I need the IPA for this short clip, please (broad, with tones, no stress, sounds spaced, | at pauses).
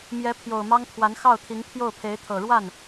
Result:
m j ɛ˧˥ pʰ j o˨˩ ʊ̯ m ɑ˥ ŋ t̪ʰ w a˧˥ n x ɑ˥˩ ʊ̯ t̪ʰ i˧˥ ŋ pʰ j o˥˩ ʊ̯ pʰ e˧˥ ɪ̯ t̪ʰ ɤ˨˩ ɻ w a˥˩ n